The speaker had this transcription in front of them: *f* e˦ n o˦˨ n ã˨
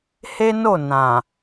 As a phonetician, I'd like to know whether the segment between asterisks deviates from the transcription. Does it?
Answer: yes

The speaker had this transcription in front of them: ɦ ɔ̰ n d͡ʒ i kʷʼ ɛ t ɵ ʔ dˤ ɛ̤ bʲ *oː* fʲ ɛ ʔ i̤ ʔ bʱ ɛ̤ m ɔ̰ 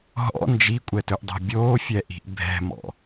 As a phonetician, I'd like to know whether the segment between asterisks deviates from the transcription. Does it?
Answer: no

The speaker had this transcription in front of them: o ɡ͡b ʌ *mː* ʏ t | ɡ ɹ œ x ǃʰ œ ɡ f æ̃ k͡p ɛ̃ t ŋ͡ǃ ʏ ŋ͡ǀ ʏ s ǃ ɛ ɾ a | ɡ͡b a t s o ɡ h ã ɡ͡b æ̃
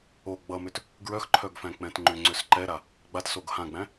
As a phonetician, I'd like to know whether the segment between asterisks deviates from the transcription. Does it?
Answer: yes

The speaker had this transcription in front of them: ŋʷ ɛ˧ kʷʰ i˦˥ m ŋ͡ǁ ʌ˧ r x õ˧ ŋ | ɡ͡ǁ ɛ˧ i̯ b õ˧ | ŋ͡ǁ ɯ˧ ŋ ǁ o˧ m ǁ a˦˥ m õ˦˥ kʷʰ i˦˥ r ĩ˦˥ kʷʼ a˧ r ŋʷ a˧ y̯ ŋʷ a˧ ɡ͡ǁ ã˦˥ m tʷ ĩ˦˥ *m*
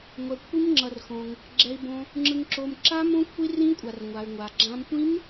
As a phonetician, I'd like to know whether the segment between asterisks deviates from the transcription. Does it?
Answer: no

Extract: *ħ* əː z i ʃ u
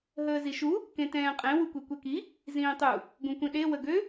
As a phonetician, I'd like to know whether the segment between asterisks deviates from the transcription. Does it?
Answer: yes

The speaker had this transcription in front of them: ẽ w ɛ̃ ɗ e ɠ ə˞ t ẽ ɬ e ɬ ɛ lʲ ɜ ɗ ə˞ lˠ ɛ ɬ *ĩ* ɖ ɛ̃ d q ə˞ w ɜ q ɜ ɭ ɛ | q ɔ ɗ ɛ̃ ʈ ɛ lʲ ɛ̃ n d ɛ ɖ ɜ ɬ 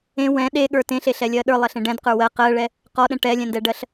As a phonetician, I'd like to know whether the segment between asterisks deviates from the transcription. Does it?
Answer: yes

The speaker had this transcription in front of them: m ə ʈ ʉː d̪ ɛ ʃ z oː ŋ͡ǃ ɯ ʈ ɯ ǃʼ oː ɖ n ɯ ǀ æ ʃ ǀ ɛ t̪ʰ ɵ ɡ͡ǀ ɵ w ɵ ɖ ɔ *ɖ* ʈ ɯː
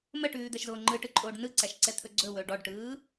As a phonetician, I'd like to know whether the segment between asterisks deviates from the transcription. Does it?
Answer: no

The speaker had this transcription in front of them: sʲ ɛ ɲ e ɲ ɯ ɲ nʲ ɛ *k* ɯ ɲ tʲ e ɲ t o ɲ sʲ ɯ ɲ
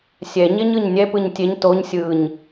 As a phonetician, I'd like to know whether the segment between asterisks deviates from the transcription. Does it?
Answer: yes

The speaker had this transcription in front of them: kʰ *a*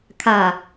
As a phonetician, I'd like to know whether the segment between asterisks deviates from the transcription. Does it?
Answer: no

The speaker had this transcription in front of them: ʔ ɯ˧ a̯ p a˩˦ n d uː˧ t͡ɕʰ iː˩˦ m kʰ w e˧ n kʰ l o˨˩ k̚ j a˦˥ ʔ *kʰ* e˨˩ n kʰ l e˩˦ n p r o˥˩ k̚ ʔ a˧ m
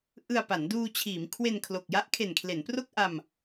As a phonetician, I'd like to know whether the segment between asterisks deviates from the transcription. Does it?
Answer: no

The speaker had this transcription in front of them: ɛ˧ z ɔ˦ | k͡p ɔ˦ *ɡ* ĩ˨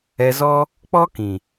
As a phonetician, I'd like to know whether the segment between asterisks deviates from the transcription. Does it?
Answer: yes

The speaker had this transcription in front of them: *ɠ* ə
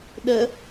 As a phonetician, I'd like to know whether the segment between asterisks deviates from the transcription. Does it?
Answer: yes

